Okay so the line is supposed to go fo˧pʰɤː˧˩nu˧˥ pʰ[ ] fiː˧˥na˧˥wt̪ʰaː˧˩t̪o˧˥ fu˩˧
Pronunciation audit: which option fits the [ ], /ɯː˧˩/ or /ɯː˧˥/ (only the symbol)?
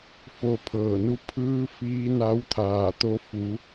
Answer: ɯː˧˥